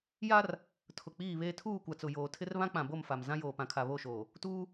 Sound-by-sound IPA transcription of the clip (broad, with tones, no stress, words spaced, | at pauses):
ja˦r | tʰʊ˨k͡piː˦˨βeː˦ tʰuː˦˨kʷa˨t͡sʊ˨joː˨ tʰɪ˦r βã˦k͡pã˨ bo˦˨mfa˨m zã˦joː˨pã˨kʰa˨ βo˦˨ʃoː˨ | tuː˦